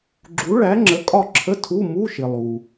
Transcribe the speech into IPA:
ɡ͡ǁ u˨˥ ɭ æ˨˥ ŋ͡ǁ ə˨˥ kʼ ɒ˦˨ ǁʰ ə˧˥˧ tʰ u˧˥˧ m u˧˥˧ ʃ ɪ˨ lˠ u˨

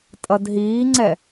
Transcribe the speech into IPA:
tʼ ʌ d ɦ iː ŋ͡ǀ ɛ

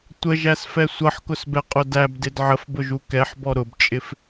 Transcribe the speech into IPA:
tʷ ə ʒ æ s f ɛ sʷ ʌ ħ k ʊ s b ɛ qʼ ʊ d æ b d ɪ d ʕ ə f b ʊ ʒ u k ɛ ħ b ɔ ɾ ʊ b t͡ʃʼ ɪ f

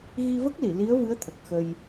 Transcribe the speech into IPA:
ɣ i˧ v ə˦˥ k̚ l i˨˩˨ l i˧˥ ə̯ v ɨ˧˥ ə̯ t̪ʰ ə˨˩ k̚ x ə˧ j

